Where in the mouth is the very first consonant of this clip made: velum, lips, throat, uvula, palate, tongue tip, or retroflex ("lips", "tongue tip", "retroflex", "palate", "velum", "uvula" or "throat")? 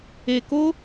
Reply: velum